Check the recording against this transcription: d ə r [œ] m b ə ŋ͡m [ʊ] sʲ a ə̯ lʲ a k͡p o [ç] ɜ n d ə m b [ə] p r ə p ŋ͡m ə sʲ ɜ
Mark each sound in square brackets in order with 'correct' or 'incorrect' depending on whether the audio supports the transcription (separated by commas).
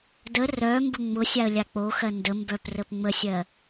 correct, correct, incorrect, incorrect